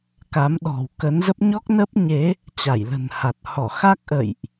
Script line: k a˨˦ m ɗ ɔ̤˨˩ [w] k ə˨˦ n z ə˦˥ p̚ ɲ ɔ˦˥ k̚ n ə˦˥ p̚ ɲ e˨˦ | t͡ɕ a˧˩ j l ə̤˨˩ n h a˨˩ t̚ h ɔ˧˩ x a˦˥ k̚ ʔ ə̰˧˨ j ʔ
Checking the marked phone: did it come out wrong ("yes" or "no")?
no